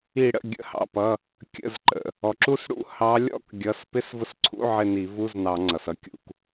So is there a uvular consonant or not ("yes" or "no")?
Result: no